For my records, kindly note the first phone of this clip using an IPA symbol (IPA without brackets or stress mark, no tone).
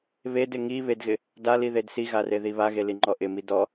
β